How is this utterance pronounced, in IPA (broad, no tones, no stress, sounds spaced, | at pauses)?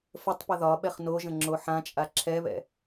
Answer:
f ə tˤ p ə ð ɒ ɓ ɛ χ n o ʒ ə̃ ŋ͡ǁ o ħ ã t͡ʃʼ a ǁʰ ɛ β ɛ̰